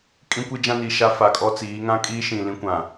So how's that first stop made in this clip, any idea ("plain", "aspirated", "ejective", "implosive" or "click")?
ejective